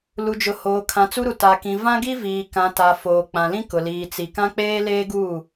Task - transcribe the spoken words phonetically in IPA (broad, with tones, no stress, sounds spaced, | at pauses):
l u˨ d͡ʒ ʊ˨ h oː˨ kʰ ã˨ t͡s u˦ ɾ u˨ t a˨ k ĩ˨ v ã˦ ɡ i˦ v iː˨ k ã˨ t a˨ f oː˨ k͡p ã˨ l ĩ˦ k ʊ˨ l iː˨ t͡s i˨ k ã˦ k͡p eː˦ l eː˦ ɡ uː˦˨